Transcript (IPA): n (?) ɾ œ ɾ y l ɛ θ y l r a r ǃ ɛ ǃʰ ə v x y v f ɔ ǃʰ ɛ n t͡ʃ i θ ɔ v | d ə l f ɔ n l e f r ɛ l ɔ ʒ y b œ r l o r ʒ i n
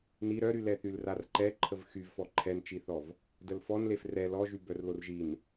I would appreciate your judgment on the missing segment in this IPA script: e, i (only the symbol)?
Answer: i